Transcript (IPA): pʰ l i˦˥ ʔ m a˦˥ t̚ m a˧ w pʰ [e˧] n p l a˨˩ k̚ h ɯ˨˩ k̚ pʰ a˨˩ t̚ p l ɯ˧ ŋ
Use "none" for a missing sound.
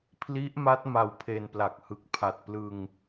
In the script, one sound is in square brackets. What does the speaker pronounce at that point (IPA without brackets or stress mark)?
e˧